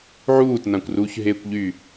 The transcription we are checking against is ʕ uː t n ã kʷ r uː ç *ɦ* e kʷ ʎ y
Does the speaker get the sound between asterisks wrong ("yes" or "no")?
no